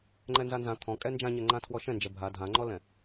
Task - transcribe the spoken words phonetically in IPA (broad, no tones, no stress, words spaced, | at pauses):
ŋ͡ǃɛnzanzã t̪ʰɔ̃ kʼɛnd͡ʒãɲɛŋ͡ǃã tʰwɔʃɛ̃nd͡ʒɛ bʱa dʱãŋ͡ǃɔlɛ̃